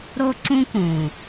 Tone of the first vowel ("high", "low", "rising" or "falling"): high